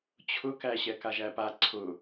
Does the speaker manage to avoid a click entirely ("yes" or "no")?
no